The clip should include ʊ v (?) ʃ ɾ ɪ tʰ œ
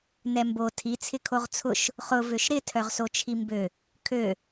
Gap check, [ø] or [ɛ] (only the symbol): ø